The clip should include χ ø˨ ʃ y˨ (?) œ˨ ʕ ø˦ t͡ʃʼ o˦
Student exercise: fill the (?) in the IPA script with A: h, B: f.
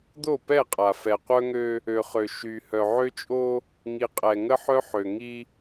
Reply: A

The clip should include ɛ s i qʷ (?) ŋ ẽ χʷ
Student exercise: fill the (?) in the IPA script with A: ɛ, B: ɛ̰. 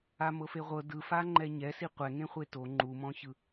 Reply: A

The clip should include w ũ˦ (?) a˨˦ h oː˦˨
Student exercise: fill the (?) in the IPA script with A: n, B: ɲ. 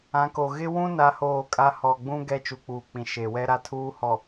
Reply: A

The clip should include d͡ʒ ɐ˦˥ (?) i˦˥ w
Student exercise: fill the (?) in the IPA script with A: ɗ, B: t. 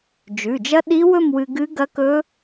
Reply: A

